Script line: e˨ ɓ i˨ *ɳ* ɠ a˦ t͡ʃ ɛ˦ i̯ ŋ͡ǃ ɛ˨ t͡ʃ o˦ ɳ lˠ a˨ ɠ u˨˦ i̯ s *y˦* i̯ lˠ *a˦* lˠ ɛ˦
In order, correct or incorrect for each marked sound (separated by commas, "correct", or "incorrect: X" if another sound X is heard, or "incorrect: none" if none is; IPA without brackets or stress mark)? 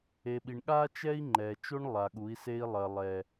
correct, incorrect: e˦, incorrect: ɐ˦